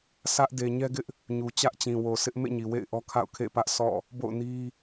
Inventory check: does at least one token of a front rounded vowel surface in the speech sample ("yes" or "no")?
no